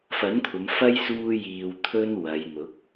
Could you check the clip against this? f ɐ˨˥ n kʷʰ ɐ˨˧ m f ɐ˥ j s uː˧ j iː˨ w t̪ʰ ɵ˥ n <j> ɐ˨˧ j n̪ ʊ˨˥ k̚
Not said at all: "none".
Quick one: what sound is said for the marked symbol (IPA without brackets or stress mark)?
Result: w